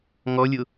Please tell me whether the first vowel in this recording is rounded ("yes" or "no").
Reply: yes